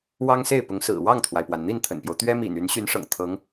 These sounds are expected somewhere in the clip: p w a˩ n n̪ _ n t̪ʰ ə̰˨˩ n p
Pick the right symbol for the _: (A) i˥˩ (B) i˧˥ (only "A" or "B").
A